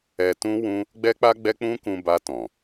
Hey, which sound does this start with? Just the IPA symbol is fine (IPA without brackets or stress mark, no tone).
ɛ